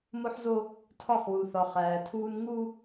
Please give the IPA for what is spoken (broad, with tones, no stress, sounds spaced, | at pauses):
m o˦ ħ z o˦ | tʰ ɒ˦˨ χ w u˨ θ ɒ˨ χ æː˨ tʰ uː˦ n ŋ u˦